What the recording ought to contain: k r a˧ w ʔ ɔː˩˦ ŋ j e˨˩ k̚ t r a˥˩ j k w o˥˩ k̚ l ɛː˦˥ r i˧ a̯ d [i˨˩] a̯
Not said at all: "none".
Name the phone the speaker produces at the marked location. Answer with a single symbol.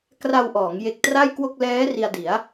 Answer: i˩˦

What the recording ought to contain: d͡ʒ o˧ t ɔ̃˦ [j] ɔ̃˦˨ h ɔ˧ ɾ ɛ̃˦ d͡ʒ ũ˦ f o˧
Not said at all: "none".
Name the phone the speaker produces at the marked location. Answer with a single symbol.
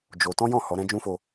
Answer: j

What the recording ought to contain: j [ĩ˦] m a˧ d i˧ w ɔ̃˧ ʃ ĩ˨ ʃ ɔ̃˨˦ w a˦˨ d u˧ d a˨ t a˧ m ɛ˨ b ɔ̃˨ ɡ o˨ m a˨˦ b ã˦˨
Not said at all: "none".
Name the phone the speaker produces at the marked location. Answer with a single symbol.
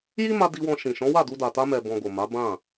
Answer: i˦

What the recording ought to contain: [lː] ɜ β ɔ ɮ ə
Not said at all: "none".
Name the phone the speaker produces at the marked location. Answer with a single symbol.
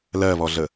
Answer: l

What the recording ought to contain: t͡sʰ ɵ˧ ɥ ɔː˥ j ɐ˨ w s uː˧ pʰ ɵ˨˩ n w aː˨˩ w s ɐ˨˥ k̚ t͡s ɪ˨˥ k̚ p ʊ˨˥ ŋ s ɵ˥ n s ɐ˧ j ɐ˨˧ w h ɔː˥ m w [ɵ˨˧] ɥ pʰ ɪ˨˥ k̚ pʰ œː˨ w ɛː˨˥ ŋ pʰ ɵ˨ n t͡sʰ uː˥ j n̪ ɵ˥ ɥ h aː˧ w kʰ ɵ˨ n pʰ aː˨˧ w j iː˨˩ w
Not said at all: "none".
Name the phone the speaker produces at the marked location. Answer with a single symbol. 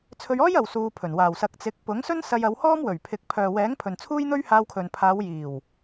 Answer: ɵ˨˩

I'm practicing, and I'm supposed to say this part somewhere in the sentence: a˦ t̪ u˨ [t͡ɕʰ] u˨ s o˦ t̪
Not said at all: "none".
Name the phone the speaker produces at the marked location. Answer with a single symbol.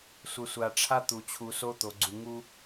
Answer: t͡ɕʰ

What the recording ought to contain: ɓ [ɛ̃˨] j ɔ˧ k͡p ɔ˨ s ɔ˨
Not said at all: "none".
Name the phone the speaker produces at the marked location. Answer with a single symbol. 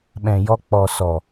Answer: ɛ̃˨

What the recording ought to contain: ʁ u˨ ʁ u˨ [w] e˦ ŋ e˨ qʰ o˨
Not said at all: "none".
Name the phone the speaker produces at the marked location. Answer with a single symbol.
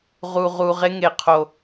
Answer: ʁ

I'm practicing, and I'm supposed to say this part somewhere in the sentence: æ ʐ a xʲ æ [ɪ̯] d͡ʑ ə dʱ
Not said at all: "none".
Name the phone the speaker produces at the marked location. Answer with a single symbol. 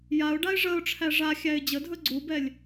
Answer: ɪ̯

